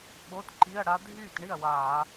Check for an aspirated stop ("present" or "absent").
absent